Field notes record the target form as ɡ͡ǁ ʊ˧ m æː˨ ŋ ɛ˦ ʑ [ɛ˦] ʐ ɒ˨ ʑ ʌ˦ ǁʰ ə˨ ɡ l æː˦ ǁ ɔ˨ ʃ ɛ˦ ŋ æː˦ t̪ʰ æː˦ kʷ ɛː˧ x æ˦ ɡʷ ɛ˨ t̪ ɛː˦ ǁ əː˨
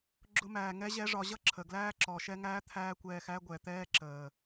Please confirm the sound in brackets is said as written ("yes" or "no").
yes